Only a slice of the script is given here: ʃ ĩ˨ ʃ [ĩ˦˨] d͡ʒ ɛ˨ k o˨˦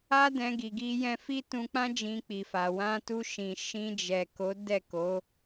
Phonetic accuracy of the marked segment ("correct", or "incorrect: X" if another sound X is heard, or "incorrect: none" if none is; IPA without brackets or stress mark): incorrect: ĩ˧